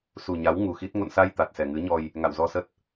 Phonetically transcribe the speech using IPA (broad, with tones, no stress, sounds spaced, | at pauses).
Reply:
s u˨˩ ɲ a˨˦ w ŋ u˨˩ x i˦˥ t̚ ŋ o̰˧˨ n s a˧ j t̪ a˨˩ t̚ s ɛ˨˩ ŋ ɨ˨˦ ɲ ɔ˧ j | ŋ a̰˧˨ w z ɔ˧ s ə˦˥ t̚